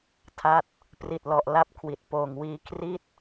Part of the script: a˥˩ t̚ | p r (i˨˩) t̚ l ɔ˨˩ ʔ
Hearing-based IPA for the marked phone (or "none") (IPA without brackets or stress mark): i˨˩